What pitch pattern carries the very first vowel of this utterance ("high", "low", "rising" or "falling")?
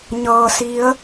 low